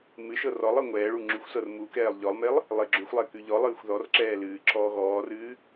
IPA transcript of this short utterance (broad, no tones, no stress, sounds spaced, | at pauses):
m ɨ ʃ ɤ r ɔ lˠ ɤ ŋʷ ɛː ɭ u ŋ͡ǁ ʉ xʷ s ɤ r m u k ɛː lˠ ʎ ɔ lˠ m e lˠ | lˠ e ɡ͡ǁ ʉ xʷ lˠ ɛ k ʉ ʎ ɔ lˠ ɨː xʷ ð ɔ r ǁ ɛː l ɨː ǁʰ ɔː ɣ ɔː r ɨː